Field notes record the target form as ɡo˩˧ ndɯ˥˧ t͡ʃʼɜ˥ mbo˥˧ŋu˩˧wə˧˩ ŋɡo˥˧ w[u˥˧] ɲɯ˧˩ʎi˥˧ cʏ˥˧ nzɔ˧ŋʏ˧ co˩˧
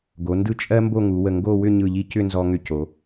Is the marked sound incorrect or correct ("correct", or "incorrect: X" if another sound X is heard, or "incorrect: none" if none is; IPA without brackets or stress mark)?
incorrect: ʏ˥˧